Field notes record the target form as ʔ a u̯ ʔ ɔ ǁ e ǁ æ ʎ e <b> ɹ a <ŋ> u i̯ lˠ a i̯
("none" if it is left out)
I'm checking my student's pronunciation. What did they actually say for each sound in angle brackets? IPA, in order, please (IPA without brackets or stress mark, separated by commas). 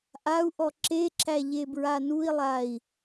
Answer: b, n